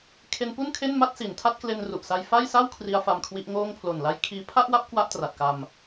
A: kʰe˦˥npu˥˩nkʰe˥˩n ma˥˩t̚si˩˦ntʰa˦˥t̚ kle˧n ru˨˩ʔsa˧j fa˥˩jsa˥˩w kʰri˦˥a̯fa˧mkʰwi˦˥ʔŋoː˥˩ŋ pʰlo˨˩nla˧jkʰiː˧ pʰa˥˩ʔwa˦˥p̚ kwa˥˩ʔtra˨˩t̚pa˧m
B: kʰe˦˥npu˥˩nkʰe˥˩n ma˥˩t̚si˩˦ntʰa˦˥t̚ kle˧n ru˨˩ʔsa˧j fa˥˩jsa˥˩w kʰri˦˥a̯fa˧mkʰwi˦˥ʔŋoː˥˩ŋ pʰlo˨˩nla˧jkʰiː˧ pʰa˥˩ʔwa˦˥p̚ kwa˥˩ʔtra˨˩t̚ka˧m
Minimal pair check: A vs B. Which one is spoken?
B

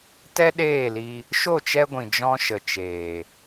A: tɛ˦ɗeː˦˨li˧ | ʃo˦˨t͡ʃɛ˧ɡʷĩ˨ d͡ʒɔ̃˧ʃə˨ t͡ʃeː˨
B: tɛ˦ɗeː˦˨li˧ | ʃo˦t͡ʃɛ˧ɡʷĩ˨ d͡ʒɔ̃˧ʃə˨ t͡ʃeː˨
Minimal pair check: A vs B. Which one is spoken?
A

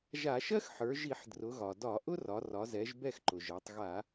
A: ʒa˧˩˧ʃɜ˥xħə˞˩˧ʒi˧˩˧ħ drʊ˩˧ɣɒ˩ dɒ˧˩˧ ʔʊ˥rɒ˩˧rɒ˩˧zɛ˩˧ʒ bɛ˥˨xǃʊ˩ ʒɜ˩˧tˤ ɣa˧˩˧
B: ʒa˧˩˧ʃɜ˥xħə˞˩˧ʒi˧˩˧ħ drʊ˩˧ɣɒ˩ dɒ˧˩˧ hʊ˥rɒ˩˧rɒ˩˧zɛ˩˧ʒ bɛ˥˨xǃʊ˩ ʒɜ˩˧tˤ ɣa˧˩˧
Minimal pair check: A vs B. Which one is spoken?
A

